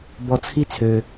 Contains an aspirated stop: yes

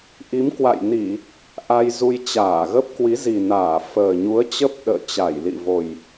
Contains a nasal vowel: no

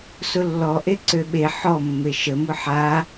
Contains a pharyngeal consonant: yes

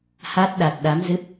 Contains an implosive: yes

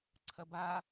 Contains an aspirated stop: yes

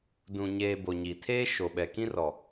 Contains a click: no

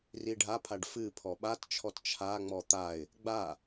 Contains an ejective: no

